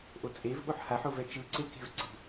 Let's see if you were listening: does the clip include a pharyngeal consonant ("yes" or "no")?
yes